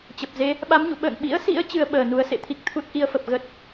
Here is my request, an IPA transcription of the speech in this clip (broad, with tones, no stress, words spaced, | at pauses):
t͡ɕə˨˩p̚ze˨˦ | ɓa˨˦mɲṵ˧˨ ɓə̰ː˧˨ŋɓḭ˧˥ə̯sḭ˧˥ə̯ t͡ɕɨ˧ə̯ɓəː˧˩nu˨˦ə̯sḛ˧˨ t̪ʰi˦˥k̚ t̪ʰu˦˥t̚ ʔi˧ə̯fə˨˩p̚ ɣə˦˥t̚